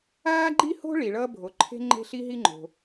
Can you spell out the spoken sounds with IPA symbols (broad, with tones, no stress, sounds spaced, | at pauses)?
aː˥ ɡ͡ǃ i˥ h o̤˥ ɭ i˩ ɭ ʌː˥ bʱ o˩ ǃʰ e̤˥ ŋ͡ǃ e̤˥ ɬ i˥ ɦ i˥ ŋ͡ǃ o̤˩